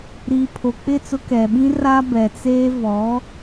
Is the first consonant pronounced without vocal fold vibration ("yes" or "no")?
no